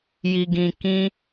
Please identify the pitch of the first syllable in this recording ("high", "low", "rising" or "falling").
low